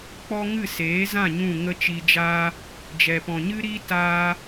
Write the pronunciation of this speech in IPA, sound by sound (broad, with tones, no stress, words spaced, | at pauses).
k͡pɔ˦ ŋɨ˦˨seː˨˦zã˦˨ ɲũ˦˨ŋə˦t͡ʃiː˧d͡ʒaː˦ | d͡ʒɛ˨pɔ̃˨ɲɨ˦ ɾiː˦taː˧